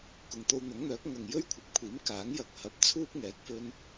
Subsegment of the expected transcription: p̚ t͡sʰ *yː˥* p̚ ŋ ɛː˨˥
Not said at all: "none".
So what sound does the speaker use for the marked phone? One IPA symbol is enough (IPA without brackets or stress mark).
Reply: uː˥